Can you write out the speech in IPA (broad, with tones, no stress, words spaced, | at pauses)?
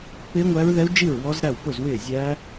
pɪː˦˥ŋʷæ˦˥ɹðɛ˦˥u̯ d͡ʒi˥˨ɹ wɔ˦˥zɾæ˥˨w pʊ˥˨zwɪː˥˨ zʲæ˦˥